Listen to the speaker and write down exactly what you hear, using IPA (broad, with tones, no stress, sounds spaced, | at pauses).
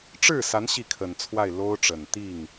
ʈ͡ʂ ɻ̩˥˩ s a˧˥ n ɕ i˥˩ kʰ ə˨˩ n t͡sʰ w a˥˩ ɪ̯ l o˥ ʊ̯ ʈ͡ʂ ə˨˩ n t̪ i˥˩ ŋ